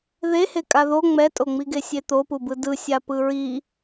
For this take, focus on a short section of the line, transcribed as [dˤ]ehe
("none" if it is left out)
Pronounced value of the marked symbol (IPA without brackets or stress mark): ð